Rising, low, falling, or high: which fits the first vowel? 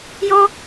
high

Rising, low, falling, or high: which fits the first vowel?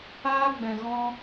high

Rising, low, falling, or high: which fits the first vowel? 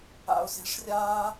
low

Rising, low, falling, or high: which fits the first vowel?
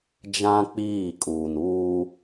high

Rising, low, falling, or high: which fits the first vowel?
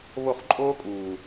falling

